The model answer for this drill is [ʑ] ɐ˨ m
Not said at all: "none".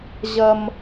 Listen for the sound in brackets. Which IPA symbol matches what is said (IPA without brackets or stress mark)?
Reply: ʑ